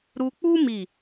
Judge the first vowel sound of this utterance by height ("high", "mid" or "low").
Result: high